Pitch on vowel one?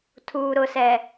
low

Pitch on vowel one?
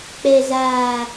low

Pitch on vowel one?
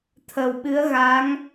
low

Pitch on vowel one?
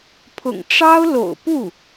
low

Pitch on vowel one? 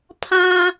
low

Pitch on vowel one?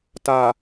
low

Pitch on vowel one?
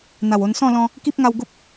low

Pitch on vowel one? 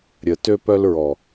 low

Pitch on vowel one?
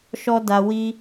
high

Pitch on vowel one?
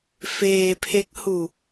low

